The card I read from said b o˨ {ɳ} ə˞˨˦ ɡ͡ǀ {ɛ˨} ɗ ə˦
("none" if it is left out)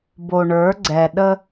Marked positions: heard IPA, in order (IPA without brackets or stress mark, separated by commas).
ɳ, ɛ˨